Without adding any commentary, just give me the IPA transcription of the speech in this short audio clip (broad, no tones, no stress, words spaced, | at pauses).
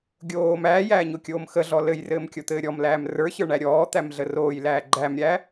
ɡʲoː mæːjæːɲokʲoːm xəɮɔ lɘjrɘːmkʲot̪ɘː ɾʲɔmlæːm rə˞çə˞ɳæ ɾʲɔːt̪æmɮə roːjlæː ɡ͡ǃæmɾʲæ